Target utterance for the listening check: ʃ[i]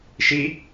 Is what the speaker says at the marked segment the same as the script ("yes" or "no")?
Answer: yes